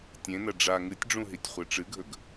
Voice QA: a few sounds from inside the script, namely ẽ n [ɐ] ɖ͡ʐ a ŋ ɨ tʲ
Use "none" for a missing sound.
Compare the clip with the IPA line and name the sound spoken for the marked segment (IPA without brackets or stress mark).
ɐ